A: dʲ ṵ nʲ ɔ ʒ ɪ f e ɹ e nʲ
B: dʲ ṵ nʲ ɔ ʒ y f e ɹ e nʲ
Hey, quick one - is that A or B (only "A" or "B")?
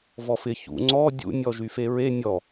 B